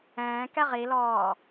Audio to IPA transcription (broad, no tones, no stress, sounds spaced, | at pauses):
ɛ̃ː k ɛ ʁ i l ɔː